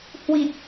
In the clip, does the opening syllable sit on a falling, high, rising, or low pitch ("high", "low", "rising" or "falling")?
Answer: low